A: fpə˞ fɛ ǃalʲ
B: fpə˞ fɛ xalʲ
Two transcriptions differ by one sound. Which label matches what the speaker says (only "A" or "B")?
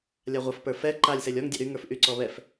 A